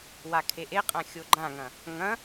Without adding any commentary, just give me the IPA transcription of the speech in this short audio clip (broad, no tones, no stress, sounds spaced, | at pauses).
w a kʰ e ʔ e qʼ ã xʲ o ɡ͡ǃ ã ŋ ɐ̃ | ŋ ɐ̃